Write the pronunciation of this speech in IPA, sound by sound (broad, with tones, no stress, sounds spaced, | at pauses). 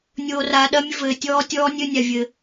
nʲ oː˨ r aː˨ ɗ ɐ˦ mʲ ɘ˦ v ɘː˨ tʲ ɔː˦ tʲ ɔː˦ nʲ ɘː˦ nʲ a˨ vʲ ɘ˨